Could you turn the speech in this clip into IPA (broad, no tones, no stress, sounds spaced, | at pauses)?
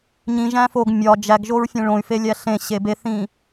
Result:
ɲ ĩ ʒ æ̃ f o ɡ mʲ ɒ d͡ʒ æ ɡ ʒ o ɹ fʲ ẽ ɭ õ y̯ f e lʲ æ ɬ ẽ ɕ e b e θ ĩ